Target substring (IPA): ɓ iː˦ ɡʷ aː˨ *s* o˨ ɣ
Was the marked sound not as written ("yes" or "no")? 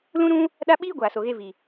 no